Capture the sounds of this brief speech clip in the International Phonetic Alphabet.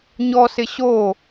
ɲ ɔ s ɪ ɕ o

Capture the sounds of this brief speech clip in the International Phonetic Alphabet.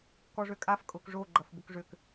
k ɔ ʐ ø kʼ a f kʼ ʊ k ʐ o ɡ͡ǃ ɐ f b ʊ k ʐ ʏ k

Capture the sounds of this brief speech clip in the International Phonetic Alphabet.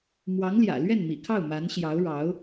m w ɑ˧˥ ŋ l j ä̰˨˩ l ɥ ɛ˥˩ n m ḭ˨˩ kʰ ɑ˥˩ ʊ̯ m a˧˥ n ɕ j ɑ˧˥ ʊ̯ ɻ ɑ˧˥ ʊ̯

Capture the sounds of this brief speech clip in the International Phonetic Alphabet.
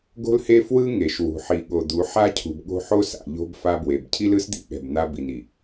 ɡ o̤˦ l h e˦ f w ɯ˦ ŋ e˨ ʃ w ṳ˨ ħ i˨ ɠ o˨ d̪ u˨˦ ħ a˦ cʰ ṳ˨ b ɠ o̤˦ ħ o˦ s a̰˨ ʎ o̤˦ b f a˦ b w e˨ b cʰ i˦ l ɯ˦ s d̪ ḭ˦ ɠ ɛ̤˨ b n̪ a˦ b i˨ n i˨

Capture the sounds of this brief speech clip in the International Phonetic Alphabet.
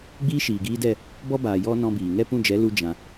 ɡ͡b iː˦ ʃ iː˨ ɡ iː˧ d ɛ˦˨ | b ɔ˦ b aː˨ j ɔ˦ n ɔ̃˧ b iː˨ ŋ ɛ˦˨ p ũ˦˨ d͡ʒ ɛ˨˦ l u˧ d͡ʒ ã˧

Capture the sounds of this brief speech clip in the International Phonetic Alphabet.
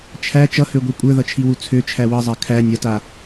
t͡ʃʰ æ t͡ʃ ʌ h ø ɡʷ i kʷʼ ə˞ ð ʌ t͡ʃʰ i w u t͡sʰ ø t͡ʃʰ æ w ʌ zˤ a kʰ æ nʲ ʌ t a

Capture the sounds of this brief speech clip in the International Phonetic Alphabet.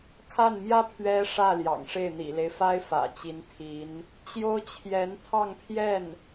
kʰ a˥˩ n m j ä˥ pʰ ɥ ɛ˥ ʂ ä˥˩ l j ɑ̰˨˩ ŋ ʂ e˥˩ ɪ̯ n̪ ḭ˨˩ l e˦ ɪ̯ f a˥ ɪ̯ f ä̰˨˩ t͡ɕ i˧˥ n t̪ʰ i˧˥ n | t͡ɕ j o˥ ʊ̯ t͡ɕʰ j ɛ˧˥ n t̪ʰ ɑ˥˧ ŋ pʰ j ɛ˥˩ n

